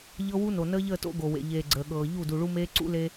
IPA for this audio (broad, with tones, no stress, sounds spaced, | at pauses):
ʎ ɤ˦ w u˦ n o˨ n əː˦ ʎ əː˦˨ t o̰˦ ɡ o˨ w ḛ˨ ʎ eː˨ ɡ͡ǀ əː˨ ɠ ɤː˨ ʎ u˦˨ d u˨ ɭ u˦ m eː˦ ǀ ṵ˦ l e˦